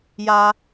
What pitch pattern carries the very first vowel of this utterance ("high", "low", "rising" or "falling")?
low